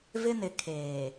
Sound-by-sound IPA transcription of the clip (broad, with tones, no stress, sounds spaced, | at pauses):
v ɪ˦ n ɪ˨ kʰ eː˨